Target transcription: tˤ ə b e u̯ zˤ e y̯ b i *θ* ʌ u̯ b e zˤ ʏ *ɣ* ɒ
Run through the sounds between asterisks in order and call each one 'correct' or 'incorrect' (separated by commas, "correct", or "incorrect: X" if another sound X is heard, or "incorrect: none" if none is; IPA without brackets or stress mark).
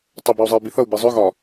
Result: correct, correct